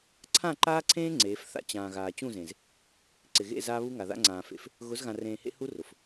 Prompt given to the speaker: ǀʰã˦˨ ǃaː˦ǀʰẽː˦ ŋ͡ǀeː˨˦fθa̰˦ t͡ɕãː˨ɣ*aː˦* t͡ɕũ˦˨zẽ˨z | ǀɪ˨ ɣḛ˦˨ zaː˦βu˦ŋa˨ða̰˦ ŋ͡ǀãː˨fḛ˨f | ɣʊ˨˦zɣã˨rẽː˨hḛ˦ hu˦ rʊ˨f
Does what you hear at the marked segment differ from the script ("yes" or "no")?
yes